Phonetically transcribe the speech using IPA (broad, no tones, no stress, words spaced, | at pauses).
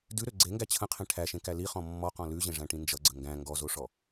dʉɾø ɡ͡ǀeŋɡæ t͡ɕʰə̃qʰẽ ʈʰæʃẽkæ liχɔ̃ mːɔqɔ̃ lʉʑẽʐæ̃ʈĩ nd͡ʒʌɡ͡ǀə ŋɡæ̃ ŋɡɔzoʂɔ